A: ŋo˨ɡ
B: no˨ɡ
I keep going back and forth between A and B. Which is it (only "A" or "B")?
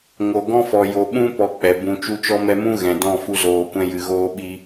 A